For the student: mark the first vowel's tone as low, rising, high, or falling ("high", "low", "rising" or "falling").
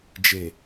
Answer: low